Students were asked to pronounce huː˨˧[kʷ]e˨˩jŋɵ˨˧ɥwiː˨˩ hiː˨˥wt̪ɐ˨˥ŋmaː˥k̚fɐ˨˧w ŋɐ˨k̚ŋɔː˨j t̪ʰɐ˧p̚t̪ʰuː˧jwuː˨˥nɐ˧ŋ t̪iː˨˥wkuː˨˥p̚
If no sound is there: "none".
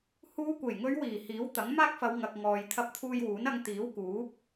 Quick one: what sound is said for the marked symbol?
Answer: kʷ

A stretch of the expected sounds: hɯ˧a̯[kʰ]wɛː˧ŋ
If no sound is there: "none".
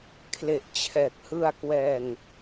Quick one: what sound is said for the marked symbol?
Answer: k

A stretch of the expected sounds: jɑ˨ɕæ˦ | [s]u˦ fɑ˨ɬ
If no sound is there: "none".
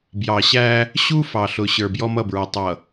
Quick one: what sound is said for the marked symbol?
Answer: ɕ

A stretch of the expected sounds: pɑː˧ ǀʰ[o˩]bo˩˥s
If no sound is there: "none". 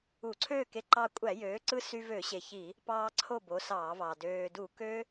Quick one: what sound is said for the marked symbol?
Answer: o˥˨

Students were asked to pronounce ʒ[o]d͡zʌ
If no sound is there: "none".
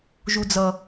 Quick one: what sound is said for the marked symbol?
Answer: u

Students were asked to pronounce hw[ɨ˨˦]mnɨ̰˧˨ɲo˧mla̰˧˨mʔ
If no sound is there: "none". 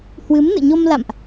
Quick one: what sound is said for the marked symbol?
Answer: ɨ˨˦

